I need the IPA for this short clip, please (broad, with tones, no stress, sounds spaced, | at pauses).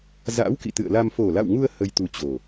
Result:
z a̰˧˥ w k ḭ˧˨ t̪ ɨ̰˧˨ ə̯ l a˧ m f o˨˩ l a̰˧˨ w ŋ u˧ ə̯ h ə˧ j t̪ u˧ t͡ɕ o˨˩